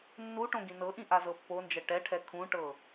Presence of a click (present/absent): absent